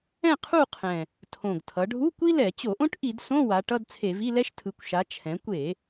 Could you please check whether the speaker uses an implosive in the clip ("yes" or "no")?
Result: no